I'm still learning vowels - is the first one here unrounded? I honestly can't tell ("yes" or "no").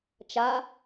yes